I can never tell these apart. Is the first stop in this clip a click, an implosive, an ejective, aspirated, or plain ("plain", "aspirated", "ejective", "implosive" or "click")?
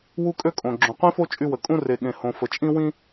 ejective